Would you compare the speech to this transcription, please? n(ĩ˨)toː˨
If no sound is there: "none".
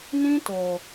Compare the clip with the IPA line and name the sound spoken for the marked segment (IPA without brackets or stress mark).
ĩ˦